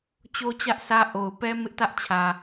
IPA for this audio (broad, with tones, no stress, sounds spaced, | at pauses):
t͡ɕ o˦ t͡ɕ ä˦ ʔ s ä˦ ʔ o˨ ʊ̯ p ɛ˦ m ɪ˦ ʔ t ä˦ ʔ t͡ɕʰ ä˨